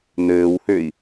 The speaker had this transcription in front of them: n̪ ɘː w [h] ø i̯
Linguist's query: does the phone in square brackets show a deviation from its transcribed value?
no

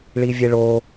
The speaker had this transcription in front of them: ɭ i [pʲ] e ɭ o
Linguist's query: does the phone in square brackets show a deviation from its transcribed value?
yes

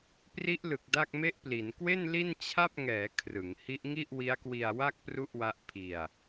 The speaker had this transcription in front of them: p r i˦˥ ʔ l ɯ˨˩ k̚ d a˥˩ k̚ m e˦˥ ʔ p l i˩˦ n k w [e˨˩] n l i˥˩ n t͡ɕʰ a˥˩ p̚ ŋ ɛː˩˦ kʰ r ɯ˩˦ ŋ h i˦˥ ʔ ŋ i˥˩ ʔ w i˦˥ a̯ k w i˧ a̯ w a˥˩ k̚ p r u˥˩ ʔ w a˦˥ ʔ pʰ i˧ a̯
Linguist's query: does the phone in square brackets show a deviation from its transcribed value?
yes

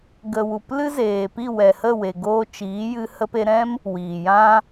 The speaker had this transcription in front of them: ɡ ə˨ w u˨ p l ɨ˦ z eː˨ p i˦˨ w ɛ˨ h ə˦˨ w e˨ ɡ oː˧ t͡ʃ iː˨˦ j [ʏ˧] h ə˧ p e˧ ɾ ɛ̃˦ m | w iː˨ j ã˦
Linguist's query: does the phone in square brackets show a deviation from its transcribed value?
yes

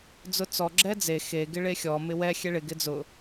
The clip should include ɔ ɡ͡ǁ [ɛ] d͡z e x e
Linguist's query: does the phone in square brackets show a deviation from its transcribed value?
no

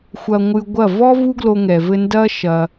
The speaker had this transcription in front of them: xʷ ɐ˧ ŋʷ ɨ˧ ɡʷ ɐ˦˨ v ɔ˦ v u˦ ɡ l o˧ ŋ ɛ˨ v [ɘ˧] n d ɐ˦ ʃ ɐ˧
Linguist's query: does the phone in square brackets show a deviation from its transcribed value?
no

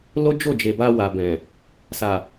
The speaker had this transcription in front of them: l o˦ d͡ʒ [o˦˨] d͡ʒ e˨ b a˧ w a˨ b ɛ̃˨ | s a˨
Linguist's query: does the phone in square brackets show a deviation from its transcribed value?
no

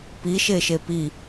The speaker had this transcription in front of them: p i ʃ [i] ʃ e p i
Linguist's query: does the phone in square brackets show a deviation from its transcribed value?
yes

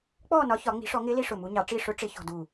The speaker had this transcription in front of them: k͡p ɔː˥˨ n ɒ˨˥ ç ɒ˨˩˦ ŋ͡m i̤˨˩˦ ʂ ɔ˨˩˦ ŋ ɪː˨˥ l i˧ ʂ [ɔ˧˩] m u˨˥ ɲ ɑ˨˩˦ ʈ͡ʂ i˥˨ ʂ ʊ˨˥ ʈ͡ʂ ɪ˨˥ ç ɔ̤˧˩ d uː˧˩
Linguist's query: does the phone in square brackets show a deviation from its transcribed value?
yes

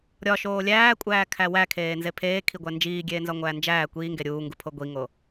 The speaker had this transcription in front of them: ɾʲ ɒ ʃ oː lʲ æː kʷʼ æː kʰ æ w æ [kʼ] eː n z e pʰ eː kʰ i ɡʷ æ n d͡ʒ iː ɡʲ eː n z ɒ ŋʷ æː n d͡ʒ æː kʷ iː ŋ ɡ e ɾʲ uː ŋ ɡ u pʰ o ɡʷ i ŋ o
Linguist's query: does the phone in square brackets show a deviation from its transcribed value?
yes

